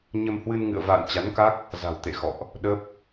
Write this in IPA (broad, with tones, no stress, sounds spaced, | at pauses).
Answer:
ɲ ə˧ m h w ɨ˧ n ŋ ɨ̰˧˨ ə̯ v a̰ː˧˨ n t͡ɕ a˨˦ n k a˦˥ k̚ | z a̤˨˩ w t̪ ḛ˧˨ x ɔ̰˧˨ ʔ | ɗ ə˦˥ p̚